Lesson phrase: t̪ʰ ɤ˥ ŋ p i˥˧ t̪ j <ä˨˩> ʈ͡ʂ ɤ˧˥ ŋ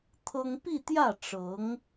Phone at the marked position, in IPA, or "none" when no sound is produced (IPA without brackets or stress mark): ä˥˩